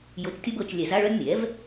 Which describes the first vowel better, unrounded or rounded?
rounded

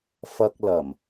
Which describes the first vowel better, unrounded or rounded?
unrounded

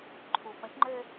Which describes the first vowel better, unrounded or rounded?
rounded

